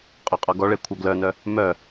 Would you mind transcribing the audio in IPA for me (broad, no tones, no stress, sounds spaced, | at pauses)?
qʼ ɔ qʼ ɔ ɡ ɔ ɭ e kʷʰ œ ɡ l œ n œ | m œ